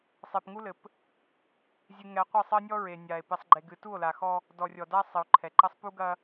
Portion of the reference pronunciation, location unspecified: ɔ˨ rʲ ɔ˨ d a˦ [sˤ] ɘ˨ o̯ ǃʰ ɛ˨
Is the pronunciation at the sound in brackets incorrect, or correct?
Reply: correct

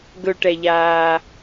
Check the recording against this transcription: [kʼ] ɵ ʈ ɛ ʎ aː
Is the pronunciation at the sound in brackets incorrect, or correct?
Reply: incorrect: ɡ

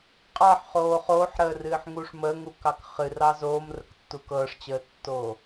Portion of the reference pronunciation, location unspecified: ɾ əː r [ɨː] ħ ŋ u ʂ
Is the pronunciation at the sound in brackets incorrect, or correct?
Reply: correct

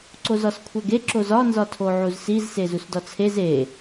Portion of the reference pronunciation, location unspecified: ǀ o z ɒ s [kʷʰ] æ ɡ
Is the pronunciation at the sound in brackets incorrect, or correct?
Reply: correct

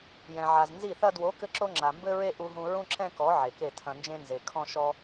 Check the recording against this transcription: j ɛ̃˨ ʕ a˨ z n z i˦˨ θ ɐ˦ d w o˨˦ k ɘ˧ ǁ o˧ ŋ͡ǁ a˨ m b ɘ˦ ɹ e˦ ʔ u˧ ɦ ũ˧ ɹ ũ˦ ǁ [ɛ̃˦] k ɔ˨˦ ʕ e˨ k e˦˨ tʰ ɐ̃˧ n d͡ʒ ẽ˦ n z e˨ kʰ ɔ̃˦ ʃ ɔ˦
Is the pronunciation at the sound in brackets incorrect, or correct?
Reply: correct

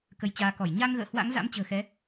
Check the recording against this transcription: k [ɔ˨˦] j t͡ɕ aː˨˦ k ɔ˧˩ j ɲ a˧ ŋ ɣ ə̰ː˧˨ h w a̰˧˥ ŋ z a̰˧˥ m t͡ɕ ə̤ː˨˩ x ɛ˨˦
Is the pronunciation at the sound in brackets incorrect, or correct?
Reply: incorrect: ə˨˦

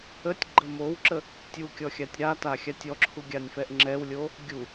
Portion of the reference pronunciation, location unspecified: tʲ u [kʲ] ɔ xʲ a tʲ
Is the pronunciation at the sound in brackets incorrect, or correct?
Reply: correct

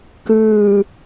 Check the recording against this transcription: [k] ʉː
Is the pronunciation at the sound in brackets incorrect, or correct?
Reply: correct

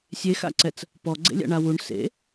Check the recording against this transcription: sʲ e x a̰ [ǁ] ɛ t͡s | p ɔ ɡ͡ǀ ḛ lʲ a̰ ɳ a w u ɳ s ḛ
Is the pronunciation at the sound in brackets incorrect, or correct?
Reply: incorrect: ǀ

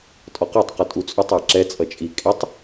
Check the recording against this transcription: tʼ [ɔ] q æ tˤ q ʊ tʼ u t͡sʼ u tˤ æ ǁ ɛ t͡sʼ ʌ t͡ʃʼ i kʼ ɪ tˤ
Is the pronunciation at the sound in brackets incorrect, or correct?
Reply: correct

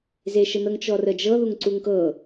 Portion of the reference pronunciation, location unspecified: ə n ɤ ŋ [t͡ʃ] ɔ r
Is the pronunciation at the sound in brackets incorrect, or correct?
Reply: correct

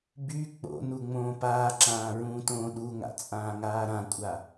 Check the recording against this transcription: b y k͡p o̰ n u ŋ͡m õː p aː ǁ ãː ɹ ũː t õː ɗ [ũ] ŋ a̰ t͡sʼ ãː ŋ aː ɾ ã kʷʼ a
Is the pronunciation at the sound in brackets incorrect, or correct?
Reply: incorrect: u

